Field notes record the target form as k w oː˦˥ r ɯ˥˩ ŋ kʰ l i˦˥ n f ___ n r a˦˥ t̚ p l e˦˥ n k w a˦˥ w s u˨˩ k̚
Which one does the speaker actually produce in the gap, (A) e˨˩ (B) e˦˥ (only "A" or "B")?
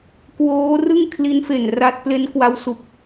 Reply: A